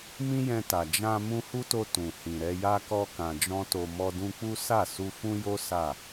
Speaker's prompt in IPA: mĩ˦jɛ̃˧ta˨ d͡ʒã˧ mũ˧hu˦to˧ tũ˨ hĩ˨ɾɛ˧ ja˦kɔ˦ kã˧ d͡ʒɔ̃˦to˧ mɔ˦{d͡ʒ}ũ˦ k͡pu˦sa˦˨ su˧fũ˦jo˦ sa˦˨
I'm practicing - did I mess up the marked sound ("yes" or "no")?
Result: yes